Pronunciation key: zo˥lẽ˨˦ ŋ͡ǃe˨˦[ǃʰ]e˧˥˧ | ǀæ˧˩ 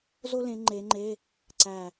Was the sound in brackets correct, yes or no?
no